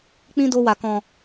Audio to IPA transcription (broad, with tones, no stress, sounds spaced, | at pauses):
k͡p ĩ˦ d o˧ w a˨ k ɔ̃˨